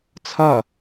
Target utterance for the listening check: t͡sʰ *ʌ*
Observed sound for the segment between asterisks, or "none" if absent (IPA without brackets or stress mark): ʌ